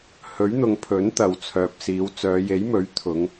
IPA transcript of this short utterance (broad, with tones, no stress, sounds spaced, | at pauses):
h ɵ˨˥ ɥ n̪ ʊ˨ ŋ pʰ ɵ˨˥ n t̪ ɐ˨ w t͡sʰ œː˨ p̚ s iː˨˧ w t͡s œː˨˧ j e˨˥ j m ɵ˨˥ ɥ t̪ʰ ʊ˨˧ ŋ